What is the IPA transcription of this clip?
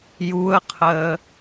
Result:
j u ə̯ qʰ əː

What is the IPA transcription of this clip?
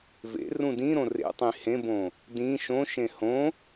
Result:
v ḛ r ũ d ĩ ɾ õ r ḛ tˤ ĩ h ẽ b õ | d ĩ ʃ õ ʃ ẽ h õ

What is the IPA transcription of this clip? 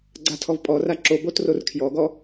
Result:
ɡ͡ǀ a tʰ ɔ v pʼ ɔ r a ǁ o b o t r o r kʰ j ɔ ɡ ɔ

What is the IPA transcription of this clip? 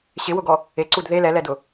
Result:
ɕ ɪ w ʊ ɡ ɔ | e ǀ u d ð e l ɛ l ɛ d ʊ

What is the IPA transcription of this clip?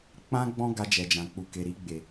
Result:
k͡p ã˦ ɡ͡b ɔ̃˦ ɡ a˧ d͡ʒ ɛ˨ d͡ʒ ã˨ k͡p u˨ k e˨ ɾ i˧ ɡ͡b e˨

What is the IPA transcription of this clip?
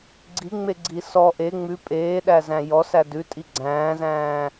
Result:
ɡ͡ǀ i ŋ͡m e ɡ͡ǀ i s ɔ ʔ e ŋ͡m ʉ pʼ eː ɗ æ z æ̃ j ɔ s æ d ʉ tʼ i ɡ͡ǀ æ̃ː z æ̃ː

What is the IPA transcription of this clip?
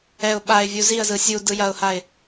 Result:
ɛ ʊ̯ ɓ a ɪ̯ vʲ u z i ə̯ z ɯ sʲ u d ɯ j ɐ ʊ̯ h a ɪ̯

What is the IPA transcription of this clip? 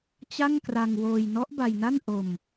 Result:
t͡ɕ a˥˩ ŋ k r a˧ ŋ w oː˧ j n ɔ˦˥ ʔ b a˧ j n a˥˩ n ʔ o˧ m

